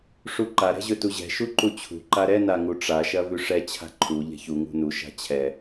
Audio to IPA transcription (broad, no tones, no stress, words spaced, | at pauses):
ʂuǃa ɾɛ̤ʑɵtuʑɛ̤ ʃuǃut͡ɕʰṳ ǃaɾɛ naŋuʈ͡ʂa ʃɐvʉʂɛ t͡ɕʰa̤ǃʰu ʎɛ̤çu ŋṳnu ʃa̤t͡ɕʰɛ